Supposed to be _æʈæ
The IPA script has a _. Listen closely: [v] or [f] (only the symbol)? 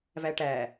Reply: v